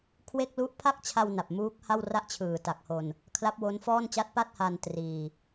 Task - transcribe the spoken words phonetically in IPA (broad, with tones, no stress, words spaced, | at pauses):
kʰwe˥˩k̚lu˥˩ʔ pʰa˥˩k̚t͡ɕʰa˧w na˨˩p̚muː˦˥k̚ ha˥˩wra˥˩ʔ t͡ɕʰɯː˨˩ta˨˩k̚ho˧n | kʰla˦˥p̚wo˦˥nfɔː˥˩nt͡ɕa˥˩t̚ pa˥˩t̚ha˧n triː˧